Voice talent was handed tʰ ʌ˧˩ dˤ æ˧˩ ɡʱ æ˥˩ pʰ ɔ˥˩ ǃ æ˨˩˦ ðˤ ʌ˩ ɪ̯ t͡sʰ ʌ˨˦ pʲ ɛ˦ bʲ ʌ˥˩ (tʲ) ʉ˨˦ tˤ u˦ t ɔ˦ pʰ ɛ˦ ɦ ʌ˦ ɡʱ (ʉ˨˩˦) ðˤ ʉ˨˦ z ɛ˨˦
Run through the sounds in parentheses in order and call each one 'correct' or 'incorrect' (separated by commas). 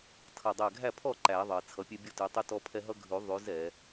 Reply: incorrect, correct